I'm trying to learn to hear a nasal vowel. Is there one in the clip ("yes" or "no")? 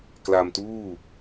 no